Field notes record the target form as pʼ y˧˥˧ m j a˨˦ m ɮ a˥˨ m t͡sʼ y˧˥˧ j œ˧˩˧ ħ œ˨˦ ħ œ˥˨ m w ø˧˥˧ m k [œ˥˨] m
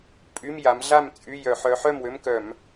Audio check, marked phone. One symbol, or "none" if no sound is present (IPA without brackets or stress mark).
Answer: œ˧˩˧